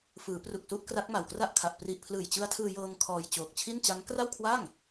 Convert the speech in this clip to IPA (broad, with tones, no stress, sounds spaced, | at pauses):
f ɯː˩˦ p r u˨˩ k̚ s u˦˥ ʔ k r a˦˥ k̚ m a˨˩ w k r a˥˩ ʔ kʰ a˨˩ ʔ p r i˨˩ ʔ pʰ l ɯː˨˩ j t͡ɕ ɯ˦˥ a̯ tʰ ɯː˧ j ɤː˧ ŋ kʰ ɔː˧ j t͡ɕ oː˨˩ k̚ t͡ɕʰ i˥˩ n t͡ɕ a˦˥ ŋ k r a˥˩ w kʰ w a˥˩ ŋ